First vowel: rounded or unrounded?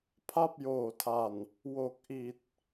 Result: unrounded